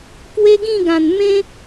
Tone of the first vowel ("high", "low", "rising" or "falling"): high